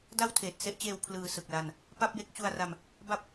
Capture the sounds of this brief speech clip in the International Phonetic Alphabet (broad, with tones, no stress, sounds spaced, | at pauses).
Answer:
d a˥˩ w tʰ eː˨˩ t̚ s e˥˩ ʔ t͡ɕ eː˧ w pʰ l ɯː˧ s ɯ˨˩ k̚ l a˧ n | p a˥˩ p̚ j e˦˥ k̚ t͡ɕ u˧ a̯ r a˧ m | b a˦˥ p̚